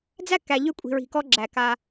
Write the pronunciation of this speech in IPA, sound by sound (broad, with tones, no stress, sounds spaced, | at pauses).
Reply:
d͡z æ˦ k æ˨ ʎ ʏ˦ kʷʼ i̤˨ ɹ i̤˨ k ɔ˦ ɡ͡ǁ æ˨ k a˦